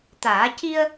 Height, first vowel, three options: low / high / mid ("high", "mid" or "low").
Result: low